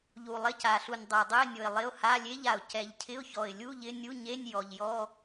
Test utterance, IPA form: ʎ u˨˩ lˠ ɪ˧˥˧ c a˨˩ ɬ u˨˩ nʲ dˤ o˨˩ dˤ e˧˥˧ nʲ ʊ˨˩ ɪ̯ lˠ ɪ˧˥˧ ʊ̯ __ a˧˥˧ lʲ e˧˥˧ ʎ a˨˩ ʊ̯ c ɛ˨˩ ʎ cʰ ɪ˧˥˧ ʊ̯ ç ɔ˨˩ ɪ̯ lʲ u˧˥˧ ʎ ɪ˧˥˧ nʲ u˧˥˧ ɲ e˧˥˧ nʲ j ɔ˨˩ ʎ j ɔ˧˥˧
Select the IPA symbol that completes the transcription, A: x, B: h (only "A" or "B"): B